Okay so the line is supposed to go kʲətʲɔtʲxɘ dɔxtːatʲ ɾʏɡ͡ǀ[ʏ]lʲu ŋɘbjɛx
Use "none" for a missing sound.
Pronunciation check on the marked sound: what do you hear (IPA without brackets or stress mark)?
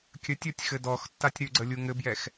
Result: ə